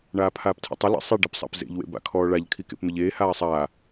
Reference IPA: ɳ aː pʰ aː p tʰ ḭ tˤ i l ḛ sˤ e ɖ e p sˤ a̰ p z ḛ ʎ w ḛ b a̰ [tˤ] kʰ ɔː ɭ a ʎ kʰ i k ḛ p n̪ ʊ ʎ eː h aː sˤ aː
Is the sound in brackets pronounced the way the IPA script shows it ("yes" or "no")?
no